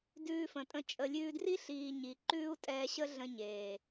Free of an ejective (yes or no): no